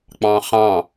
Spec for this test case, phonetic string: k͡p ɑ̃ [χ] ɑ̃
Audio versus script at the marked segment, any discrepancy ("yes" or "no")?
no